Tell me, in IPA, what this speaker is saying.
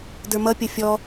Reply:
d ə˞ m ʌ pʲ ʌ fʲ ɔ

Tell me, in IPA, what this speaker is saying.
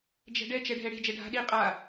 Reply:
d͡ʒ ɛ̤ ɖ ɛ t͡ʃ ɛ ɖʱ ɛ ɽ e̤ d͡ʒ ɛ ɖʱ a̤ ɗ i qʼ a

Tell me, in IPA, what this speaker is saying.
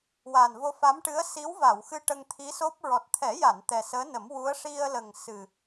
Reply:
w aː˨˩ n v o˧ f a˧˥ m ʈ ɨ˧˥ ə̯ s i˧˥ w v a˨˩˨ w x ɨ˧ ʈ ə˧ ŋ t̪ʰ i˧˥ s o˦˥ p̚ ɹ ɔ˨˩ t̚ t̪ʰ ɛ˨˩˦ j a˨˩˨ n t̪ ɛ˨˩ s əː˧˥ n ə˨˩˦ m w u˧˥ ə̯ ʂ i˧ ə̯ l ə˨˩ ŋ s ɨ˨˩

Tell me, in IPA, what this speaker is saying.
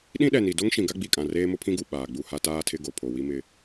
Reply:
ɗ ĩ˦ ɗ ɛ˨ n i˨ d o˦ ŋ ʃ ĩ˨ ɡ a˦ ɡ͡b i˨ kʼ ã˨ r eː˦ m ʊ˦ pʰ ĩ˦ ɡ u˨ ɓ aː˨ ɡ͡b u˦˨ h a˦ t aː˦ tʰ ɪ˦ ɡ o˨ pʰ o˨ w i˦ m ɪ˦

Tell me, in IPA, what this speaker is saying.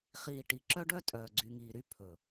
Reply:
χ iː˨ ʈ i˨ ǁ œ˦ ɖ œ˦ tʼ œː˨ ɡ͡ǀ y˨ ŋ iː˨ ɾ y˦ pʰ ɵ˨

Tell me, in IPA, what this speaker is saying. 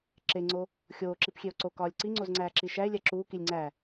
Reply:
ǁ e ŋ͡ǀ o | xʲ oː ǁ i p xʲ e o̯ ǀ o k ɒː lʲ ǀ i ŋ͡ǀ o z ŋ͡ǀ æː ǁ i ʃ æ e̯ lʲ æ ǁ uː k i lʲ ŋ͡ǀ æ

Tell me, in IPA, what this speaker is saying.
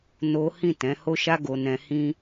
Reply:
n o˦ h ĩ˦˨ t ɛ̃˨˦ h o˦ ʃ a˦ ɡ o˧ n ɛ̃˧ h ĩ˦

